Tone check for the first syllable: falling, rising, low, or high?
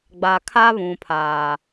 low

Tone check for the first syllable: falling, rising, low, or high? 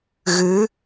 rising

